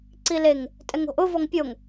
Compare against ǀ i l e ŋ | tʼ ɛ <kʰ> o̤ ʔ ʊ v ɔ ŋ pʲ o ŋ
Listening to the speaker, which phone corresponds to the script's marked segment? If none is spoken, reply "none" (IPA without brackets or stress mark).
ŋ